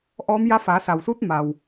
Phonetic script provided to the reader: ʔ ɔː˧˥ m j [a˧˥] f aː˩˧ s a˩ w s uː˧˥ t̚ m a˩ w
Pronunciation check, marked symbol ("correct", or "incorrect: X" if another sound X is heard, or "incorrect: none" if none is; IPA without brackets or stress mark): correct